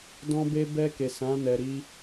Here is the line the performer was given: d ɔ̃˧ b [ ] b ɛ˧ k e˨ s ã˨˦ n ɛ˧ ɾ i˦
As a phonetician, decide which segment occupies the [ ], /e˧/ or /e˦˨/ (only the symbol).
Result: e˧